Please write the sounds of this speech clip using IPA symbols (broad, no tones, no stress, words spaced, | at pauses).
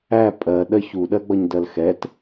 æ pʼɜ ɗɜçu ɗɜɡ͡bʌɲdɜlxɛt